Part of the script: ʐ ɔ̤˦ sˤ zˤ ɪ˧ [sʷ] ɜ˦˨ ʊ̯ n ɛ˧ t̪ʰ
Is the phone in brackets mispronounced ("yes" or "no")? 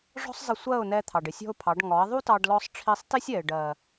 no